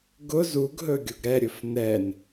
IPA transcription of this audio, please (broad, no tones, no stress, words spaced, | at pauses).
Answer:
ɡʊ zuɡɦɵ ɡʲʊɡɾɛɾʲɵf nɛn